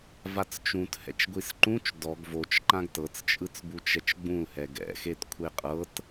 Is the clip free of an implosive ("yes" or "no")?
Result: yes